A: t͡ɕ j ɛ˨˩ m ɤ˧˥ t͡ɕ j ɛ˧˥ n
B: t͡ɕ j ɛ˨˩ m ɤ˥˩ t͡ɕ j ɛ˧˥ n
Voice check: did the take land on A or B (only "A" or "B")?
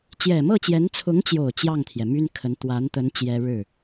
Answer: B